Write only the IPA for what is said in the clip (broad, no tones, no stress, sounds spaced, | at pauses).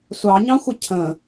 sʷ ɑ ɲ ɑ̃ xʷ ə cʰ ə̃